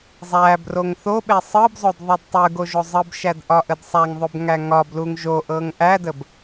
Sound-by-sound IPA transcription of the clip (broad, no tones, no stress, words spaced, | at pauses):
zˤæ broŋθoɓe sˤɯbzˤod ðˤidtˤɯɡo ʒozˤɯbʃæd ʔɒʔədsˤæŋðˤob ŋæŋɒbluŋ ʒoʔɤŋ ʔædəb